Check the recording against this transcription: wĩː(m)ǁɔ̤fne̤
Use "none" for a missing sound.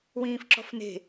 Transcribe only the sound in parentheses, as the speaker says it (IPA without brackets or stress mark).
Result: f